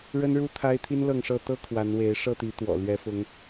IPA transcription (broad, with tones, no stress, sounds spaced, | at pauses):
ɻ ə˦ n ɻ u˦ t̪ʰ a˦ ɪ̯ t̪ʰ i˦ n l ɤ˥˨ ŋ ʂ ɤ˥˨ t̪ ɤ˦ kʰ w a˨˦ n w e˨˦ ɪ̯ ʂ ɤ˥˨ t̪ i˨˦ t̪ w ɔ̰˨˩ l ɥ ɛ˨˦ f ʊ˨˦ ŋ